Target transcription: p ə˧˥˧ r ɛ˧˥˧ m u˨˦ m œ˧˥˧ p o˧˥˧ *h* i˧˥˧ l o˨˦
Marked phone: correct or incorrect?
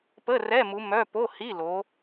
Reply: correct